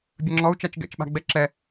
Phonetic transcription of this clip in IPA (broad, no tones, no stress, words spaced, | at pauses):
bʲɐŋ͡ǁɔu̯ t͡ʃat͡ʃɡɛ̰t͡ʃɓa̤ ɡ͡bɛǁɛ